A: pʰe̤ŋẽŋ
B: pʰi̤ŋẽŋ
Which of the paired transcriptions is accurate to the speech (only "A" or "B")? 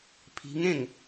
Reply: B